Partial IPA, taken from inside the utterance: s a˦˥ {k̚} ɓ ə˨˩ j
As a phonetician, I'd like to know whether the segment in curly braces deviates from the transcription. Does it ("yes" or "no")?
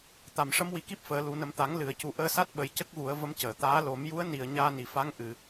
yes